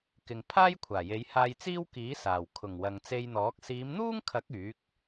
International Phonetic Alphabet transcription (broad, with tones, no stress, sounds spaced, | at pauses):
k ɪ˨ ŋ pʰ aː˥ j kʷʰ aː˨˩ j e˨˧ j h aː˧ j t͡s iː˥ w k iː˨˥ s aː˨˩ w kʰ ʊ˨˩ ŋ w ɐ˨ ŋ t͡s e˧ j n̪ ɔː˨˥ k̚ s iː˨˧ m n̪ uː˥ ŋ kʰ ɐ˨˥ k̚ yː˨˥ k̚